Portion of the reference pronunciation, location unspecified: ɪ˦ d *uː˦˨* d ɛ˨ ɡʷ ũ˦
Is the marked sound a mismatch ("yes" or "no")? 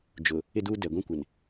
yes